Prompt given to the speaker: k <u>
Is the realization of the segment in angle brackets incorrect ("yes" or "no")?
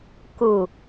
no